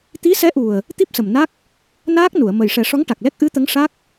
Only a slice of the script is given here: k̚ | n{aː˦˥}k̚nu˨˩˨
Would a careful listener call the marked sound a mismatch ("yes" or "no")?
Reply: no